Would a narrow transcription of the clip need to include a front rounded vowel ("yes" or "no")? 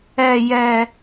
no